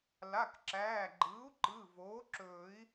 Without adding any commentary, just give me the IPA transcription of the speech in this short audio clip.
l a˩˧˩ k ǁ æː˩˧˩ ɡ͡ǃ ɯː˩˥ u̯ ǃ ɯ˩˧˩ v oː˩˥ ǁ ɵː˨˩˦ i̯

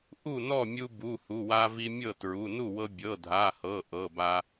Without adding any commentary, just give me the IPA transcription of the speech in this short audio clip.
ʔ u˥˩ n ɔ˥˩ mʲ u˧ b u˩˧˩ h u˩˧˩ w a˧ v i˧ mʲ ɤ˥˩ t ɹ u˩˧˩ n u˥˩ w ɤ˧ bʲ ɤ˩˧˩ dʱ a˩˧˩ h ɤ˩˧˩ ʔ ɤ˩˧˩ b a˧

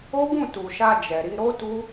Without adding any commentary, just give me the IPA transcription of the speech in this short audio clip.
o˦ ɡ ũ˦˨ t u˨ ʃ a˧ d͡ʒ ɛ˨ ɾ i˧ ɾ o˦ t u˦

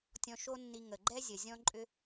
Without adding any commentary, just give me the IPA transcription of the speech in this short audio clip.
tʲ ɔ̃˧ ʃ o˥ nː i˧ ŋ ə˩ ɡ͡ǃ ɛ˥ zʲ ə˩ zʲ ɔ̃˥ ǃʼ ʏ˥

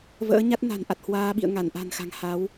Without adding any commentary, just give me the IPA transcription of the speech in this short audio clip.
v ə̰ː˧˥ ɲ a˦˥ t̚ n a̤˨˩ n ʔ a˨˩ t̚ h w aː˧ ɓ ḭ˧˨ ə̯ ŋ a˧˩ n ʔ a̤˨˩ n x a̤˨˩ ŋ h a˨˦ w

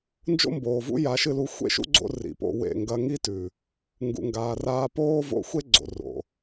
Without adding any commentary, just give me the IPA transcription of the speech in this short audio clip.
n d͡ʒ o̰˦ m b oː˨ v ṵ˦ j a˨˦ ʃ ɨ˧ l u˨˦ xʷ ḛ˦ ʃ ṵ˦ ɡ͡ǀ o̰˧ r ḭ˨ p o̰˧ w ḛ˦˨ ŋ ɡ ɐ˧ ŋ i˦ t ʉ˨ | ŋ ɡ ṵ˨ ŋ ɡ aː˨ r aː˧ p oː˦ v o̰˧ xʷ e˦ ɡ͡ǀ o̰˨ r o̰˨

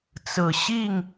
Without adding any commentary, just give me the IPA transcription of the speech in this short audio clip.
t͡s ɹ̩˨˩ ɕ i˥˨ ŋ

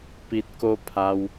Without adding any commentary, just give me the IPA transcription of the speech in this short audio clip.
p i˨ t̚ k o˧ pʰ a˧ w

